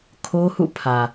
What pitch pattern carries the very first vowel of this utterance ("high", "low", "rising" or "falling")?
high